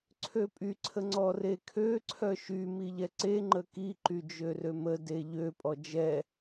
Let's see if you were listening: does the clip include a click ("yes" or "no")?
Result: yes